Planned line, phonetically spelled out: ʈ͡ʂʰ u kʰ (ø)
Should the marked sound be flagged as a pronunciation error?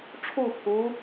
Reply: yes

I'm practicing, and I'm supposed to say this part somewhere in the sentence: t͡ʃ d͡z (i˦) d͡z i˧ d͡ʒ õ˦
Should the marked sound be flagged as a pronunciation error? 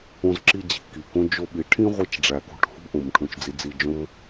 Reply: yes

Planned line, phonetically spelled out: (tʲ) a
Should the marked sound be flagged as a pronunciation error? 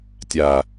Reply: no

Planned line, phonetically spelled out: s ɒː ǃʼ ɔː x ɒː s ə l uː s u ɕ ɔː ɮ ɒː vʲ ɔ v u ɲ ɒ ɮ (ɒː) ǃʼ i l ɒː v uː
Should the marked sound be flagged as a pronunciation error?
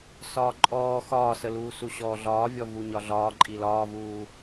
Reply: no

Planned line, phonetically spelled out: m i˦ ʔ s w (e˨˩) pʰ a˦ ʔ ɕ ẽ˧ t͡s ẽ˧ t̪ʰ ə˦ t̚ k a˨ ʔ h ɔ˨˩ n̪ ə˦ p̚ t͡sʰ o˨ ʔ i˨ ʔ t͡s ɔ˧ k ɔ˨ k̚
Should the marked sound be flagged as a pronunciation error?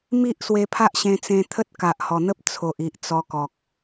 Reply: yes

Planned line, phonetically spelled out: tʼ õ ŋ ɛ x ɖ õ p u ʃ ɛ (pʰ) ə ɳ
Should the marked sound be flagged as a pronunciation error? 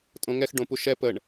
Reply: yes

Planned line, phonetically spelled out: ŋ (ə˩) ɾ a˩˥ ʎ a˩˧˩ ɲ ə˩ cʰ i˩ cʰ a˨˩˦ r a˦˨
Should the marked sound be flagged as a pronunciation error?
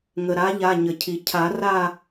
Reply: no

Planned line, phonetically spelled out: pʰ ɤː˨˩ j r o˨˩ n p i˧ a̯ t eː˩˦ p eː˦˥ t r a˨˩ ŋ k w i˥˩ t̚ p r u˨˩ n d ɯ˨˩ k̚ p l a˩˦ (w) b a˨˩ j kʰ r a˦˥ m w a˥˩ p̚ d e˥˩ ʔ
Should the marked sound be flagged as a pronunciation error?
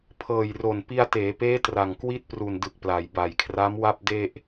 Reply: yes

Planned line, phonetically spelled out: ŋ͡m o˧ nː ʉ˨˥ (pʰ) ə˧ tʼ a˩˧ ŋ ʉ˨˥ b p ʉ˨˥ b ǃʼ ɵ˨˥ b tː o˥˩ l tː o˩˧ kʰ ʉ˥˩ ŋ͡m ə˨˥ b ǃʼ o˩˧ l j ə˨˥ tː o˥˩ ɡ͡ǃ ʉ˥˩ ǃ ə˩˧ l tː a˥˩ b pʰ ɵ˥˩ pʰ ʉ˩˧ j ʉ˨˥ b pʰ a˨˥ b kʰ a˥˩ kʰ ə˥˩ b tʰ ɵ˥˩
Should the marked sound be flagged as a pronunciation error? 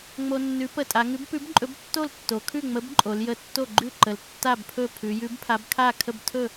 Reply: yes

